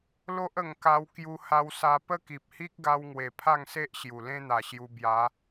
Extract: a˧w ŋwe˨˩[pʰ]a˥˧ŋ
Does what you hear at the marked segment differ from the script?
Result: no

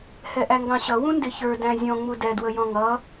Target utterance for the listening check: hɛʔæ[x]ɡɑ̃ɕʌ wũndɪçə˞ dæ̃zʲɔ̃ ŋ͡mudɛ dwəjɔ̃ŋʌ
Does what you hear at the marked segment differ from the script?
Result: yes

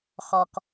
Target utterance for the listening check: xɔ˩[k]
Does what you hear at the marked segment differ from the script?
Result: no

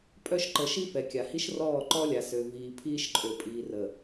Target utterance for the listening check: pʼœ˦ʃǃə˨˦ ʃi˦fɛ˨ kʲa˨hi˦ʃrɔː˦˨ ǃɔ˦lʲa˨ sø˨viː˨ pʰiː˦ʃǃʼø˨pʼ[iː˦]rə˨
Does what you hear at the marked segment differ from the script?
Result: yes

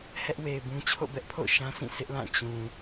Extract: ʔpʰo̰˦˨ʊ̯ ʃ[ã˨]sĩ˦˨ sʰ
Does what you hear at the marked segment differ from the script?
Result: yes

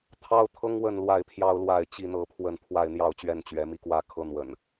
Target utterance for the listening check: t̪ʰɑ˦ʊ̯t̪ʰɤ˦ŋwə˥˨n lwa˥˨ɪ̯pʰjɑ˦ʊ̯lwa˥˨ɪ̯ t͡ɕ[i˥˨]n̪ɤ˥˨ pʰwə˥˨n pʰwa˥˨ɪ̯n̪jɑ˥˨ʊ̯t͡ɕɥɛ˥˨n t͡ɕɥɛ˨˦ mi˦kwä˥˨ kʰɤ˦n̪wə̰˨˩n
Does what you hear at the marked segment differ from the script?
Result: no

